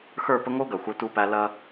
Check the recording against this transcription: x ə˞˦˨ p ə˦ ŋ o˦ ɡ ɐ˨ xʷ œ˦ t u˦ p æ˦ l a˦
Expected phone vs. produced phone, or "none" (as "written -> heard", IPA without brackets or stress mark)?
a˦ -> ɐ˦